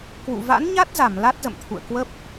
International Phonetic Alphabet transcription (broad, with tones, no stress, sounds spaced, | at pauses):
k w ṵ˧˨ v a̰˧˥ n ɲ a˦˥ t̚ z a˧˩ m l a˦˥ t̚ z ə̰˧˨ m t̪ʰ ṵ˧˨ ə̯ k w ə˦˥ p̚